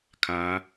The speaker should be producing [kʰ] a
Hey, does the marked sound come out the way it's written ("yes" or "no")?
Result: yes